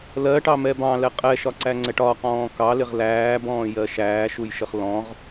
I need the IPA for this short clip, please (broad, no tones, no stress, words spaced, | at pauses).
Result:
lɜʈɑmɛ bɑ̃lɛ qʼɛʃɒǀæŋ͡ǀɛʈ ɒqɔ̃ː kɑlɪʁ læːbɔ̃ːjɜ ʃæːʃujʃəχ lɔ̃ʁ